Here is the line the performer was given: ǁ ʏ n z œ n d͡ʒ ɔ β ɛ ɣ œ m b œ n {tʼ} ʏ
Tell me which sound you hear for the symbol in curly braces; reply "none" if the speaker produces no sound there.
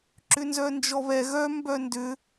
d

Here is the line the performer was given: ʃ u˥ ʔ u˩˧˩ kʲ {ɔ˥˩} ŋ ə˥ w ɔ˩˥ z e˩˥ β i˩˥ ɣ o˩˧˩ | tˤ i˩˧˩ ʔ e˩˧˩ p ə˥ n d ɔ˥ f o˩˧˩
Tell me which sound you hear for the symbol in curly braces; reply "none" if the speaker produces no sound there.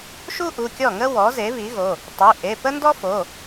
ɔ˥˩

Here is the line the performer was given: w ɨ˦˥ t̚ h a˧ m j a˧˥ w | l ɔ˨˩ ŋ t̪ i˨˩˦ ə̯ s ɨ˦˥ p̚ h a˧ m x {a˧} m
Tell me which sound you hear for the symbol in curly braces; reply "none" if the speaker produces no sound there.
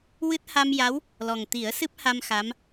a˧˥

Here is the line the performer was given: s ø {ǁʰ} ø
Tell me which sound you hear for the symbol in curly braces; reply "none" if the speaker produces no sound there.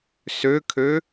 kʰ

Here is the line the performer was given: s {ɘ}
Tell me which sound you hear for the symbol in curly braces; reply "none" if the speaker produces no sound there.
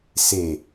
e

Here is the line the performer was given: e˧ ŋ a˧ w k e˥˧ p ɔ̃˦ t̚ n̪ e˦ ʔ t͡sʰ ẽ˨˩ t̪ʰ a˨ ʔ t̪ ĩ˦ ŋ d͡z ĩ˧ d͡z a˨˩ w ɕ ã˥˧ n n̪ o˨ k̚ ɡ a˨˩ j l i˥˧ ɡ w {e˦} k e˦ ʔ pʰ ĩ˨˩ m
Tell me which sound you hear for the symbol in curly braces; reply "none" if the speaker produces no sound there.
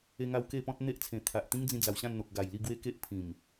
e˦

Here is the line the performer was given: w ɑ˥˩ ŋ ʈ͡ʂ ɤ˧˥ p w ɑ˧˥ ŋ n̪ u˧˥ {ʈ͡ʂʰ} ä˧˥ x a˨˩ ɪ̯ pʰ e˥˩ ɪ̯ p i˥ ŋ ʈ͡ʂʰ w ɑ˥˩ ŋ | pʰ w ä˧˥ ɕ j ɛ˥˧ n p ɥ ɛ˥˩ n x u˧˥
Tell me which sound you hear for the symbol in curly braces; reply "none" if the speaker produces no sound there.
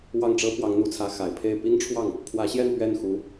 t͡sʰ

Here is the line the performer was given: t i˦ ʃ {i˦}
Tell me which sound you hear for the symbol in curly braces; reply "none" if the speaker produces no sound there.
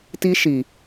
i˨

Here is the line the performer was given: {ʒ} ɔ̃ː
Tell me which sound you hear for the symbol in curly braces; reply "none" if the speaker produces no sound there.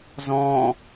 z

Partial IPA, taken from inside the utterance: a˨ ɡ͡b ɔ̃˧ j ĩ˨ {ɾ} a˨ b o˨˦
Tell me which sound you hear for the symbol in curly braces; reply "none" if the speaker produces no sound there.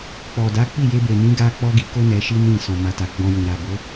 ɾ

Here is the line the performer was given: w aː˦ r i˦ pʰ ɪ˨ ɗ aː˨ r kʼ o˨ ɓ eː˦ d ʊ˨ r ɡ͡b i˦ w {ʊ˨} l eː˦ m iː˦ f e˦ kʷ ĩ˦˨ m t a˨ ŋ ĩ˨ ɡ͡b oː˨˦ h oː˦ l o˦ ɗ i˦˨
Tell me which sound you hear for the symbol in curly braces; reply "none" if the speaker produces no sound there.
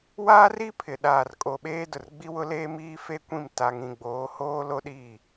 ʊ˦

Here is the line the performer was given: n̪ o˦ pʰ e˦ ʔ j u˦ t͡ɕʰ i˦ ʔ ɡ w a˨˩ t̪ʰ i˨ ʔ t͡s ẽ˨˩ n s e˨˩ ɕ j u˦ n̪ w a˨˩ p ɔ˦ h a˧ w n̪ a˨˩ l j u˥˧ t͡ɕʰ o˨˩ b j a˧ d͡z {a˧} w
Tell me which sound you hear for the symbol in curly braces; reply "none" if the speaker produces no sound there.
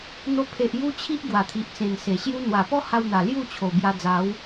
a˨˦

